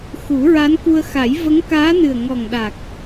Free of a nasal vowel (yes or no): yes